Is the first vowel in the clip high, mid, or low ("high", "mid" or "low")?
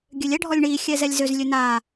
mid